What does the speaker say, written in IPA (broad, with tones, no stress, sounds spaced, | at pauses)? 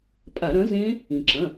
pʼ a˧˩˧ ɾ ɐ̃˨˥ z ẽː˦˥ | ĩ˩ ǁ ɐ̃˩˧˩